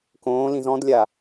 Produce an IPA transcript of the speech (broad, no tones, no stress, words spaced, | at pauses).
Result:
kõːlĩz ɔ̃dlʲa